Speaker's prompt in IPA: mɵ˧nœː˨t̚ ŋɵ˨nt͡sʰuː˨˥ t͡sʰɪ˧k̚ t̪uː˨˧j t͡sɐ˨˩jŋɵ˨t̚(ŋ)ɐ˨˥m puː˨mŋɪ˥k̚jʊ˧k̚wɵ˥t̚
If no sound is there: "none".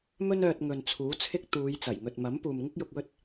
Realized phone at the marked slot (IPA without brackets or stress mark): m